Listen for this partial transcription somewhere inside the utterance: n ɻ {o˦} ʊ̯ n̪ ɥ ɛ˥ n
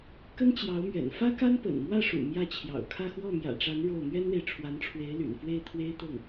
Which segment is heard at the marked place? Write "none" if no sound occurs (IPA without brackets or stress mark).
o˥˩